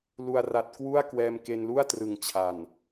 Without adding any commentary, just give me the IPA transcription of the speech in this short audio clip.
l u˨˩ a̯ r a˨˩ t̚ k w u˥˩ a̯ k w ɛː˧ m k e˧ n l u˥˩ a̯ t r ɯ˩˦ ŋ t͡ɕʰ a˨˩ n

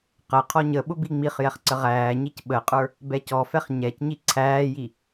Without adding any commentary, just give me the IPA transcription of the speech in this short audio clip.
q ə qʰ ɔ ɲ ə ɓ ʊ b i ŋ͡m i χ j ɛ χ ǀ ə ʁ æː ɲ i c ɓ ə qʼ ə˞ | b ɛ c ɔ f ɛ χ ɲ ɛ c ɲ i ǀʰ æː j i

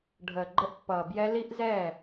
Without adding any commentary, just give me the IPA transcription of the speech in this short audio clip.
ɖʱ əː˨ ɡ͡ǃ ə˧ ʔ pː ʌː˨ b j ɛ˧ l i˦ ʔ z ɛ˦˨

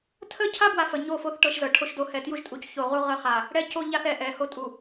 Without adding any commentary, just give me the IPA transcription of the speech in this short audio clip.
tʰ ə˦ cʰ a˦ b w a˦ f ə˨ ɲ o˦˨ f o˦ θ ʈ ɤ˦ ʃ z ɤ˨ ʈʰ o˦ ʃ d o˦ h ɛ˨ t j u˦ ʒ tʼ u˨ c ç o˨ ʁ u˦ ʁ ə˦˨ χ a˨ | ɽ ɛ˦ c o˦ ʎ a˦ θ ɛ˨ ʔ ɛ˨˦ h o˦ tʼ u˨

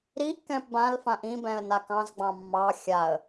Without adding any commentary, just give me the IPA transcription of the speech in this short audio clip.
ɾ i ʔ k ɛ̃ p b ã l f ã ʔ ĩ b ɛ̃ ə̯ n a k ɑ̃ z ɡ͡b ɑ̃ mː ɑ xʲ a ə̯

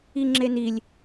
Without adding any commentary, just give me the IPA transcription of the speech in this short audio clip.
i ŋ͡ǁ e n i lʲ

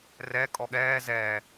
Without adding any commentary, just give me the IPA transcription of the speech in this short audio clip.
r ɛ kʼ ɔ ɠ ɛː z ɛː

